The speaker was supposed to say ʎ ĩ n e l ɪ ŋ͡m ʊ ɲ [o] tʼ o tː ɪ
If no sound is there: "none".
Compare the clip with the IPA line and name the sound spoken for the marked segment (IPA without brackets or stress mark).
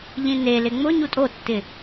u